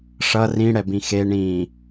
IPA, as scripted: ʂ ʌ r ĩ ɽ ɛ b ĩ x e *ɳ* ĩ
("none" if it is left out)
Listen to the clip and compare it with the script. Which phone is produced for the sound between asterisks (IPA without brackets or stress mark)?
ɳ